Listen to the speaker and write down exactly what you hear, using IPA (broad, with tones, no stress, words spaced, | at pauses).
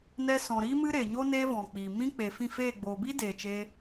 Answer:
nɛ˧sɔ̃˨ ɾi˦mɨ˦ɾe˨ɲo˦ ne˦vɔ̃˨k͡pi˨ mĩ˧k͡pe˨ fĩ˦˨feː˦˨ ɡ͡boː˨bi˦deː˨ t͡ʃeː˧